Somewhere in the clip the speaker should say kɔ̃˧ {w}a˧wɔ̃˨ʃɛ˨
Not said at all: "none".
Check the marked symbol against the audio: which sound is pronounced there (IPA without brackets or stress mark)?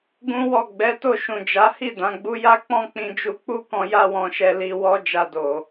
j